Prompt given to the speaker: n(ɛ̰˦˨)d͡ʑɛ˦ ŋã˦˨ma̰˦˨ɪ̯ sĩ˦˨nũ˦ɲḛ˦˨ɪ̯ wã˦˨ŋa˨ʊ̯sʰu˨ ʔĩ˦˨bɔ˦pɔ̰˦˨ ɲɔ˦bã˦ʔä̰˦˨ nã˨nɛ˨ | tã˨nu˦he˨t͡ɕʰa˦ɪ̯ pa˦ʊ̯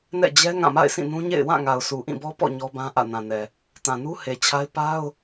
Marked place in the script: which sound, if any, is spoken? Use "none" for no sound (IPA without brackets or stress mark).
ɛ̰˦˨